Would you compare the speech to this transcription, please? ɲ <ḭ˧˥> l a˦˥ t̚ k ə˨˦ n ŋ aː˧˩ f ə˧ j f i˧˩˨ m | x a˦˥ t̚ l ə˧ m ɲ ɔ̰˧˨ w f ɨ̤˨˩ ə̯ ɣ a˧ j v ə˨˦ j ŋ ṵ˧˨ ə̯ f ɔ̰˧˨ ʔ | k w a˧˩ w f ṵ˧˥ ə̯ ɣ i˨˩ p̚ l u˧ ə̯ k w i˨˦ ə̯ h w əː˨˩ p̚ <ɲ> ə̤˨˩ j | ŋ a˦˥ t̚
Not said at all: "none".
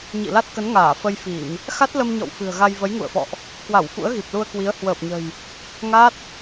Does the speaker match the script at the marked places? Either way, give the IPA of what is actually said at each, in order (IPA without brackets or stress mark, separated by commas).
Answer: ḭ˧˨, ɲ